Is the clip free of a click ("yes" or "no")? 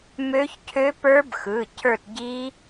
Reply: yes